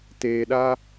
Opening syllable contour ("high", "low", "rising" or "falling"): low